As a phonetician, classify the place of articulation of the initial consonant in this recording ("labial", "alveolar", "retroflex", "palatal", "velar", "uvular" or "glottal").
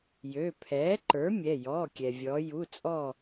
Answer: palatal